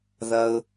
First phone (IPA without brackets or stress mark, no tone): ð